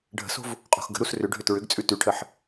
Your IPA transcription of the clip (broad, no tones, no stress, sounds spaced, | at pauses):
ɖʱ ə̤ s o̤ v | qʼ o̤ x ɡ ə̤ ɾ u s r ʏ ɖʱ ʏ t ɹ ʏ ɡ t͡sʼ ʉ t ʉ ʈʰ ə ħ